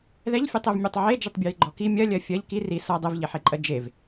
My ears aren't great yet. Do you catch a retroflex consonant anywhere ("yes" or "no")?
no